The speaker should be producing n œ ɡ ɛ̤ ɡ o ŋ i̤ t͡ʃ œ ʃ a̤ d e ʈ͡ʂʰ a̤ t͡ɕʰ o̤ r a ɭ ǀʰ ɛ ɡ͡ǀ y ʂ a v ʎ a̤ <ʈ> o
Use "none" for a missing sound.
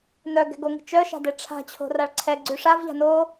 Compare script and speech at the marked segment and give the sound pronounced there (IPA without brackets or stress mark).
n